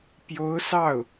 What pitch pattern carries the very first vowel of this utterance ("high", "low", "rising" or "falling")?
rising